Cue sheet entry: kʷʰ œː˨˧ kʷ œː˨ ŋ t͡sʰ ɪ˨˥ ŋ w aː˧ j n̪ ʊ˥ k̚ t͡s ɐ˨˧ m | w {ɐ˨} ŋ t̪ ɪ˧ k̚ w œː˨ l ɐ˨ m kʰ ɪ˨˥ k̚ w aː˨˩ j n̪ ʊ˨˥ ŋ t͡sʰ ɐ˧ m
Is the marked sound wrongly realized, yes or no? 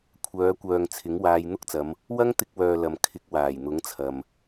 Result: yes